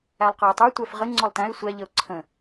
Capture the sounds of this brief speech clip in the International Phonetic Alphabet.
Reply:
æ lˠ q ə˞ ɪ̯ tˤ ə˞ tʷ æ f ʁ ə ŋ͡ǀ ɔ lˠ t æ̃ ɪ̯ sʷ æ ʎ ə ʊ̯ ǀʰ ə̃

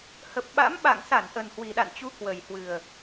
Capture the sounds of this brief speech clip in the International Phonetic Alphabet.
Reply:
h ə˨˩ p̚ ɓ a̰˧˥ m ɓ a̰˧˨ ŋ s a˧˩ n ʔ ə˨˩ n h w i˨˩ ɗ a̰˧˨ n t͡ɕ u˨˦ k w ə˨˩ j h w ɨ˨˩ ə̯

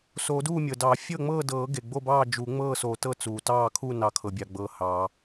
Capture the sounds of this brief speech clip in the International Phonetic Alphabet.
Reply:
s o˨˩˦ d uː˥˨ mʲ ɤː˩ d ɑ˨˩˦ fʲ ɤ˥˨ ŋ͡m ɤː˥˨ d ɤː˨˩˦ ɡ e˩ ɡ͡b o˥˨ b ɑː˥˨ d͡ʒ u˨˩˦ ŋ͡m ɤː˥˨ s o˨˩˦ t ɤ˥˨ t͡s uː˩ t ɑː˥˨ kʰ u˥˨ n ɑ˨˩˦ kʰ ɤ˩ bʲ ɑ˩ ɡ͡b ɤː˩ h ɑː˨˩˦

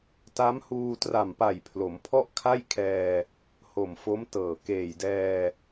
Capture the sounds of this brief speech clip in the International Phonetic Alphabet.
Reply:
t a˦˥ m h uː˧ t r a˨˩ m p a˨˩ j pʰ l o˩˦ m pʰ ɔ˥˩ ʔ kʰ a˥˩ j kʰ ɛː˧ | h o˨˩ m f o˦˥ m t ɤː˨˩ k eː˨˩ j d ɛː˧

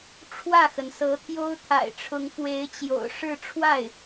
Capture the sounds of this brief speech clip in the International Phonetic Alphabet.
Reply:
ʈ͡ʂʰ w ä˥˩ x ə˩ n s ɤ˧˥ t̪ʰ j o˥ ʊ̯ t̪ʰ a̰˨˩ ɪ̯ ʈ͡ʂʰ ʊ˧˥ ŋ f w e˧˥ ɪ̯ t͡ɕ j o̰˨˩ ʊ̯ ʂ ɻ̩˥˧ ʈ͡ʂʰ w a˥˩ ɪ̯

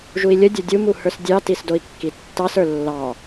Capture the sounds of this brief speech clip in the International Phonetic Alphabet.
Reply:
ʒ u i̯ lʲ ə dʲ ə˞ dʲ u m u h ə˞ s dʲ ɑ t i s d o i̯ kː i tː ɑ s ə˞ lː ɑ

